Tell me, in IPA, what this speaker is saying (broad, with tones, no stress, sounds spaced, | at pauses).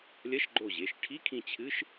lʲ ɐ˧˥˧ ʃ ɡ͡ǃ o˧˩ ʑ e˩˧˩ ʃ ʈʰ i˧˥˧ kʰ ĩ˧˩ t͡ɕʰ ɨ˧˥˧ ʃ